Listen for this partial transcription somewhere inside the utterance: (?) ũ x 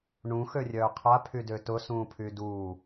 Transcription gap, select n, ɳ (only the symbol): ɳ